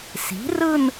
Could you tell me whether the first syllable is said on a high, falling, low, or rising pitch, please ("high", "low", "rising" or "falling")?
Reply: rising